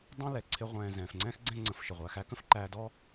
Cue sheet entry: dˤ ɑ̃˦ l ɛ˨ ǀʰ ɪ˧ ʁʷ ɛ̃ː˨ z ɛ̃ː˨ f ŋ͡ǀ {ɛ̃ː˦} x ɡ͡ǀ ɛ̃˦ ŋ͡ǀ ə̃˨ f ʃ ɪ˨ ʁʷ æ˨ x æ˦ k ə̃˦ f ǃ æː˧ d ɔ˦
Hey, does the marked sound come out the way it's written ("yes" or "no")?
yes